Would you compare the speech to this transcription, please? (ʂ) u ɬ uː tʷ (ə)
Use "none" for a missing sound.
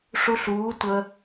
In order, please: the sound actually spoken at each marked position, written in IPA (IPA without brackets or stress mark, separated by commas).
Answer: ʂ, ə